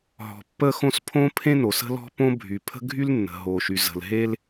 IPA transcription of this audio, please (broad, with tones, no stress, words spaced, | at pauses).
ɦɔ̤˨pːə˥xõ˥s pʰõ˥pʰẽ˥ no˨sə̤˥lɔ̤˥ põ˥bʱy˨ pʰə̤˥ɡʱy˥l nːə̤˨ɦo˨ʃy˨ zə̤˨l ɦe˥l